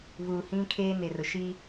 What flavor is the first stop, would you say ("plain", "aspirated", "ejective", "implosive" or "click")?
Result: aspirated